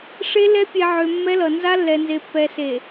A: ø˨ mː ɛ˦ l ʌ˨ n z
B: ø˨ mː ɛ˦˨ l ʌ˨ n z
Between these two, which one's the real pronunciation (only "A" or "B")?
A